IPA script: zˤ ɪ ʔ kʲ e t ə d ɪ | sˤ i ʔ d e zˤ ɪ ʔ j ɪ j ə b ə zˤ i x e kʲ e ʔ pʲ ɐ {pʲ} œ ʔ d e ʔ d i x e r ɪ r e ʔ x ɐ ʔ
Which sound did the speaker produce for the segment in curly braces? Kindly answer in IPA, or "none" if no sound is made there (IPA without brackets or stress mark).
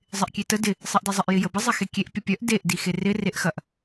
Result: pʲ